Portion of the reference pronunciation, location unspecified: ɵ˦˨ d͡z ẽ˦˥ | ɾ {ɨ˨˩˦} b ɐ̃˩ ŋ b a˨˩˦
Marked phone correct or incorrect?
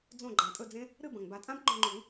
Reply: incorrect